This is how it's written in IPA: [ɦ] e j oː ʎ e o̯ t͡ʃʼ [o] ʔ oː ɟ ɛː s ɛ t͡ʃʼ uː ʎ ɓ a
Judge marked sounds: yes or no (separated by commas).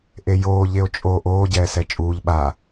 no, yes